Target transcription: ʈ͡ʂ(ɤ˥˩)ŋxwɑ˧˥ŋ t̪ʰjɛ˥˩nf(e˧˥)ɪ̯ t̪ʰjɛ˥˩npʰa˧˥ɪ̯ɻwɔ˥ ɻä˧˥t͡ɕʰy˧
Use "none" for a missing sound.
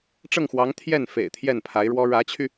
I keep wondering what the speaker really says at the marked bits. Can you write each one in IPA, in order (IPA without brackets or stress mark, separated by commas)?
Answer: ɤ˥˩, ḛ˨˩